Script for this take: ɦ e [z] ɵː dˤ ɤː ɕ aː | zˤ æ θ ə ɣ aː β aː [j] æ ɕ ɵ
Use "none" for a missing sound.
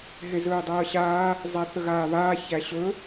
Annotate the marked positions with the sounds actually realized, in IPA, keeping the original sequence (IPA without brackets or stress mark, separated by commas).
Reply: z, ç